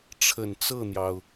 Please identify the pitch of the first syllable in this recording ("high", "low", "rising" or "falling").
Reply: low